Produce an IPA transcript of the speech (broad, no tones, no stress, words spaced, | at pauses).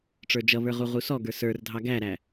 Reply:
ʈ͡ʂə˞d͡ʒʌβə˞ ʁuʁusɔɡə˞ sə˞rdʱɑ ɡæɾæ